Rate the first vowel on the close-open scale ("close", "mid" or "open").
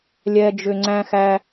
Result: mid